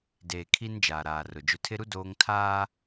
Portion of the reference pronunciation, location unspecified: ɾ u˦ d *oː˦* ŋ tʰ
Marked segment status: correct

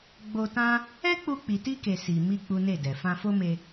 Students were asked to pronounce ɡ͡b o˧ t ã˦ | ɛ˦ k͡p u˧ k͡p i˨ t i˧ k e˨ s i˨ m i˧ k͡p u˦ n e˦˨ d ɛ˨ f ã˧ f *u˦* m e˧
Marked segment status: incorrect: o˦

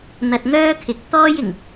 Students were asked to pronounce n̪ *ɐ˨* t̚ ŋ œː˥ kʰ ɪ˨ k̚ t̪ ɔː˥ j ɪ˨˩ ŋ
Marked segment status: correct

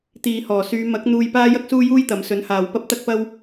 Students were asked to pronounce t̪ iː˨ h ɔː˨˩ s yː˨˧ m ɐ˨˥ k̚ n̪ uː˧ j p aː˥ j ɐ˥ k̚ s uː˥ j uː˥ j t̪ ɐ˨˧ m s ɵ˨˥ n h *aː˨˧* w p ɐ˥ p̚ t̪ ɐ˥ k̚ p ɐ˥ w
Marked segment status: incorrect: aː˨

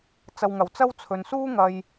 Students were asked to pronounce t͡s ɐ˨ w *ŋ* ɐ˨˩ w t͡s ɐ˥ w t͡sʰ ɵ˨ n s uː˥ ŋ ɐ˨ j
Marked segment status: correct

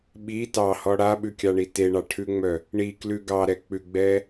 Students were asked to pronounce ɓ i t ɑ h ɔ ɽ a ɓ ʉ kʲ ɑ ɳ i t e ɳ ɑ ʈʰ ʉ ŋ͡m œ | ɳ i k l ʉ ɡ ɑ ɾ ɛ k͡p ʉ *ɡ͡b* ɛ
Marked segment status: correct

